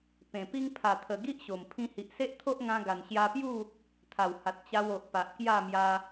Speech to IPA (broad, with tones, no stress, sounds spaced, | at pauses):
p ẽ˨˩ p i˦ ŋ pʰ a˨˩ t̪ʰ ə˨˩ ɡ i˦ ʔ ɕ o˨˩ m pʰ ĩ˧ h i˨ ʔ s e˦ ʔ t̪ʰ o˦ ʔ ŋ ã˧ ɡ a˨˩ n ɕ j a˧ p j u˥˧ | t̪ʰ a˨˩ w h a˨ t̚ t͡ɕ a˧ w o˨ ʔ p a˨ ʔ k j a˥˧ m j a˧